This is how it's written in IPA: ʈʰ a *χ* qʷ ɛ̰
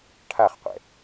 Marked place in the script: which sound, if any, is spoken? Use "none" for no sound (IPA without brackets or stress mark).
χ